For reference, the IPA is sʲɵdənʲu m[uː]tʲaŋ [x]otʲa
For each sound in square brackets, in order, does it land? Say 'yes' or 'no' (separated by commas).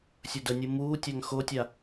yes, yes